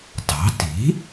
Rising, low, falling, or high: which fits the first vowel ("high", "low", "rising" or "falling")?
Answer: rising